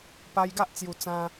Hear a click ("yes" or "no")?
no